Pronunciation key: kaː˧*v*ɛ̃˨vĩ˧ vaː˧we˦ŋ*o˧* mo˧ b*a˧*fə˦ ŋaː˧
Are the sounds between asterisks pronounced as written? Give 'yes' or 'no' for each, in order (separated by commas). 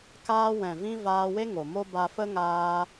no, no, yes